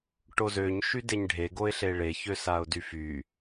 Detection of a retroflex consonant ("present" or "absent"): present